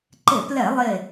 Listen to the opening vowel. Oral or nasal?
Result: oral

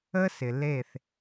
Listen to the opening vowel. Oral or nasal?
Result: oral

